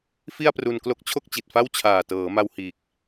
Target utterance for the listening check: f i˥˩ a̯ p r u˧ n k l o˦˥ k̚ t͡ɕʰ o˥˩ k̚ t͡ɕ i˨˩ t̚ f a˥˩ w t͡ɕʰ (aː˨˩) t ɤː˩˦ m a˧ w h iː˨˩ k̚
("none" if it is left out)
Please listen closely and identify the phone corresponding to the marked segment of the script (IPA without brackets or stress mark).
aː˨˩